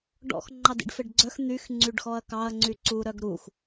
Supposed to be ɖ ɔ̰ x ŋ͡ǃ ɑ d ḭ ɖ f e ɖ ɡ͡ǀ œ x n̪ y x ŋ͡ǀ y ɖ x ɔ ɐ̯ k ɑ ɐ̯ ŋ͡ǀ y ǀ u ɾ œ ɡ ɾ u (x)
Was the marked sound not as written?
no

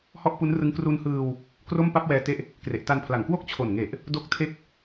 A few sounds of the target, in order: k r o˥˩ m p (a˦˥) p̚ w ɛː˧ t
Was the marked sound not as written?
yes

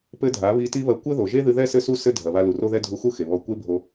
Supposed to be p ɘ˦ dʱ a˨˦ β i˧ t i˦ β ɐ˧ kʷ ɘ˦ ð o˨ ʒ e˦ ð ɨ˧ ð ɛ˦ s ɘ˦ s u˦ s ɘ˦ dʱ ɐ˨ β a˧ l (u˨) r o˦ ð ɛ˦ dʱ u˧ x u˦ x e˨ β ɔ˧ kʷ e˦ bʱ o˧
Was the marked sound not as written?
no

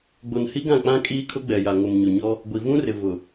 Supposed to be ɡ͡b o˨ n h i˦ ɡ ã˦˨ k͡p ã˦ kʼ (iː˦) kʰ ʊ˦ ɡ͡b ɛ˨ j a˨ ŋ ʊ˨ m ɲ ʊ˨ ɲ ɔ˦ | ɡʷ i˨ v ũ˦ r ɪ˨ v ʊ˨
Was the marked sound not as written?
no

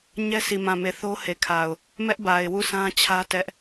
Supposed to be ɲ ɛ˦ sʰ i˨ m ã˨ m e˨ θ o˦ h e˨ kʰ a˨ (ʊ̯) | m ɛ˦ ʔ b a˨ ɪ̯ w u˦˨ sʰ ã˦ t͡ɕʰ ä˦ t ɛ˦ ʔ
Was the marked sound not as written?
no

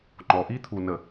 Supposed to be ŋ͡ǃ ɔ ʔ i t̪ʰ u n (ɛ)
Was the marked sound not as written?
yes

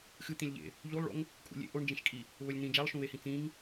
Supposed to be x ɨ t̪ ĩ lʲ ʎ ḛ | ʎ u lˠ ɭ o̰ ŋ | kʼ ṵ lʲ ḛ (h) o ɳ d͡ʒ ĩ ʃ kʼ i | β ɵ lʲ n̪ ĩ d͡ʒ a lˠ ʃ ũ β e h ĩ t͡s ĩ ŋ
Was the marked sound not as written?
yes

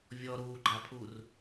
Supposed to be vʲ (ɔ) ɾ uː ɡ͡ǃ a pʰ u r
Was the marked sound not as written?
no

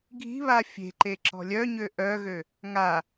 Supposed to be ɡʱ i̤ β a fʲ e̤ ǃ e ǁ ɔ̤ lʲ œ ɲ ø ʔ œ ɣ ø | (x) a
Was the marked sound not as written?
yes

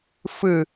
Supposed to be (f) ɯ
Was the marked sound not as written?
no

